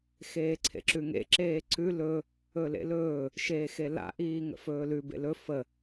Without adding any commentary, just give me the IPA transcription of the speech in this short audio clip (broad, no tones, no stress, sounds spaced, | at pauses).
x eː ǀʰ ḛ ǁ ʉ ŋ ḛ ǁ eː ǀ ʉ l ɵ | ɵ l ḛ l ɵː | ʃ eː x e l a̰ ʔ iː ŋ ə̰ f ɵː l ʉ b ḛ l ɵ f ə